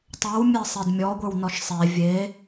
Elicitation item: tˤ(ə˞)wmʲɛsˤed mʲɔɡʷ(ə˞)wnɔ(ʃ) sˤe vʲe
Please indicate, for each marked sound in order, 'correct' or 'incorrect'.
correct, correct, correct

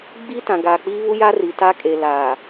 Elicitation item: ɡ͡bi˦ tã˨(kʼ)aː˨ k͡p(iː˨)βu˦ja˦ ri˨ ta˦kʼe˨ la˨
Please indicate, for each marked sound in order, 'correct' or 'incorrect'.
incorrect: ɡ, incorrect: iː˦

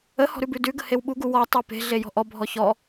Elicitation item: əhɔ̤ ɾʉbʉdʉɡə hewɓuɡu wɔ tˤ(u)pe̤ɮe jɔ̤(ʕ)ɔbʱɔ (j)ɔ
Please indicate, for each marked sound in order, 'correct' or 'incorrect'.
incorrect: ʉ, incorrect: ʔ, incorrect: ç

